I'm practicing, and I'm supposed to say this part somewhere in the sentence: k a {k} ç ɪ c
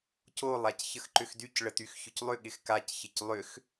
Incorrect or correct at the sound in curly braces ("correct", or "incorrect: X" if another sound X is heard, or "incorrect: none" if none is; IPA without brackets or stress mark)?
incorrect: c